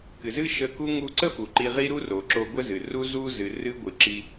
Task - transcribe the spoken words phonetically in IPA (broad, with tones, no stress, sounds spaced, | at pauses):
k ɨ˩ z ɨ˥ ʃ ə˧ k u˥ ŋ u˧ ǀ ə˥ f u˩ ǃ i˧ ʁ i˥ ɾ u˥ r o˩ ǁ o˧ ɡʷ ə˥ z ɨ˩ r u˥ z u˥ z ɨ˩ r ɨ˥ ɡʷ ɨ˩ ǁ i˧